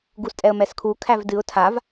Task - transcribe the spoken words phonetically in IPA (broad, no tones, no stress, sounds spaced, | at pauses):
ɡ u s tʼ ɛ ə̯ m ɛ s kʰ u kʰ æ v d ɨ ʊ̯ tʰ a v